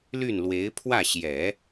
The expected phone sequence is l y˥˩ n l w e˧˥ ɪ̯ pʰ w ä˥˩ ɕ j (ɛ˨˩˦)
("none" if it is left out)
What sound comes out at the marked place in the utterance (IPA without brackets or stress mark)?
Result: ɛ˨˩˦